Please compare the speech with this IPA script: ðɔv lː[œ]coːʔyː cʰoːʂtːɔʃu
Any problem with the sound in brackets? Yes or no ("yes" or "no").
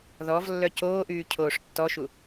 no